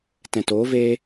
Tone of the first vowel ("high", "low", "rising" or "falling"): low